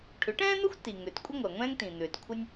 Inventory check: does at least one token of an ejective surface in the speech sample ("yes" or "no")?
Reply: yes